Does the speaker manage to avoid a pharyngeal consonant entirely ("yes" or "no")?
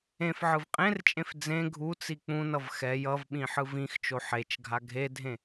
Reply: no